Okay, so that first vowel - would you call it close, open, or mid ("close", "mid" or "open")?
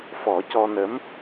mid